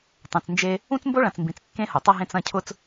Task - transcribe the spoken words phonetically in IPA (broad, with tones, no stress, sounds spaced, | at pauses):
tˤ ẽ˨ t͡s n d͡ʒ e˦ | ũ˦ t͡s m b o˦ ɭ ɐ̃˨ t͡s m b ĩ˨ t͡s kː ẽ˦ h o˨ tˤ ɐ˦ ɦ ẽ˦ t͡s ɐ̃˦˨ cʰ ʊ˦ t͡s